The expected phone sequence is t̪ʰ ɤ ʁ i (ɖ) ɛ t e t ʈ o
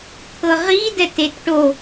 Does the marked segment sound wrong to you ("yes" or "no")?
yes